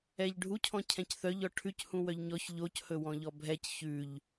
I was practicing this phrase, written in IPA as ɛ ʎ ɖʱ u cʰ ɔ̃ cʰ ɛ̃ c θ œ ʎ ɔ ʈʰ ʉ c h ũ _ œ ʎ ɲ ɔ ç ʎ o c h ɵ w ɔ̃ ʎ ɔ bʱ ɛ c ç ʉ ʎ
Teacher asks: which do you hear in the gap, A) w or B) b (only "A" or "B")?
A